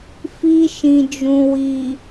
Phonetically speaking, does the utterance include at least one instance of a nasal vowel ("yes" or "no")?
yes